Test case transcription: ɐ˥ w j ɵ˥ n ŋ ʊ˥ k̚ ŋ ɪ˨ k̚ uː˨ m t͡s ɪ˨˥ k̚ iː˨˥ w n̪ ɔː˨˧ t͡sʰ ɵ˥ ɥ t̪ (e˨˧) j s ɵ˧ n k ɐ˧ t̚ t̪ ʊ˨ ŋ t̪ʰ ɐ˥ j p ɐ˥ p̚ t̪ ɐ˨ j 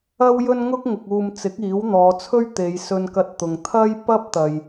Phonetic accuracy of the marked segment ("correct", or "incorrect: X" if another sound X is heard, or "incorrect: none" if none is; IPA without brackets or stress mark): correct